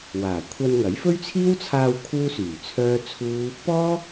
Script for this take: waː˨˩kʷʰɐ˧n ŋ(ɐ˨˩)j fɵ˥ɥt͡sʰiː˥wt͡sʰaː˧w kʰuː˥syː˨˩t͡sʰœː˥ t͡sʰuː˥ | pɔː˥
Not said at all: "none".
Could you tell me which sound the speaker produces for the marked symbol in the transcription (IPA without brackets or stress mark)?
ɐ˨˥